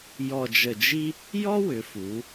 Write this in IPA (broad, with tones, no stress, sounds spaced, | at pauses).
j ɔ˧˩ d͡ʒ ə˧˩ d͡ʒ i˥ | j ɔ˥ w ʏ˩˧ f u˩˧